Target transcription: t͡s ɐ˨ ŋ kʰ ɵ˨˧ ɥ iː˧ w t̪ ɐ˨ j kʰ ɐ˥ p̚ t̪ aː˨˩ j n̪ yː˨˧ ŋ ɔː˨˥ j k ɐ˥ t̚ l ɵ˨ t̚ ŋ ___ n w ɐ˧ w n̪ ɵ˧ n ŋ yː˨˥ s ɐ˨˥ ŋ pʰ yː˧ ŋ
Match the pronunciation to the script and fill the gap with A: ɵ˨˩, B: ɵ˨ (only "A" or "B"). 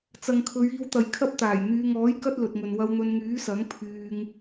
B